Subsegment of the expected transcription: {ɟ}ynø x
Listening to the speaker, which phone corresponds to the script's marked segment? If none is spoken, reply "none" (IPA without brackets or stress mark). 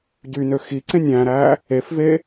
ɟ